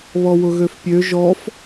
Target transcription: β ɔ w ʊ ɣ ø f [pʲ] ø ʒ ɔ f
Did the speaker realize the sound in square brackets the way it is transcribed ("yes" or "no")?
yes